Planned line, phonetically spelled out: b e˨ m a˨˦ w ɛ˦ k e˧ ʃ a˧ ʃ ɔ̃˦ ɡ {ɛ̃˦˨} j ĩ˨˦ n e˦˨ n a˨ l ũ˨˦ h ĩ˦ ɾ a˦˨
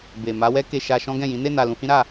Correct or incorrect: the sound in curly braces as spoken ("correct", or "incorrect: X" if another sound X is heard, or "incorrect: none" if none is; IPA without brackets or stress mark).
correct